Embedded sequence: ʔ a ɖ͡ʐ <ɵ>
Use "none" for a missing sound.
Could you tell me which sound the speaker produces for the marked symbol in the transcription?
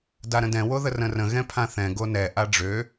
ø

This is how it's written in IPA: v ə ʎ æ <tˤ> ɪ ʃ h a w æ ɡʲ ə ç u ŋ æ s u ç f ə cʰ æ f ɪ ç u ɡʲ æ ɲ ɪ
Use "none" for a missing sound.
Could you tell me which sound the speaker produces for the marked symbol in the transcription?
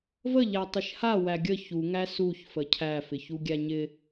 tˤ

